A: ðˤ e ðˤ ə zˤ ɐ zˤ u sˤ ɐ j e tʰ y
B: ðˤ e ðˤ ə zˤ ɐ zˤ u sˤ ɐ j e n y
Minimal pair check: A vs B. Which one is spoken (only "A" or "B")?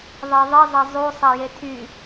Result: A